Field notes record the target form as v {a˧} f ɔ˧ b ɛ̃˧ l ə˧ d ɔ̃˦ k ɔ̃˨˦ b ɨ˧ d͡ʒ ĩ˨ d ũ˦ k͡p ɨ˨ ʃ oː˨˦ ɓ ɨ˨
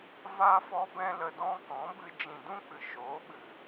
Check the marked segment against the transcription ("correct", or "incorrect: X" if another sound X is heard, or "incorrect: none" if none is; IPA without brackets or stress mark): correct